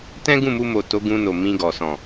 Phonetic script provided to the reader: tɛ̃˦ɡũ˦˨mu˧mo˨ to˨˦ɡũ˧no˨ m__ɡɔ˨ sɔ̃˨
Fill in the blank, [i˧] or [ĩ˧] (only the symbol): ĩ˧